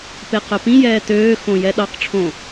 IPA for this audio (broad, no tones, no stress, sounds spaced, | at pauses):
p e q œ p ĩ j ɛː t øː x õ j ɛ ɗ ɑ q ʈ͡ʂʰ õ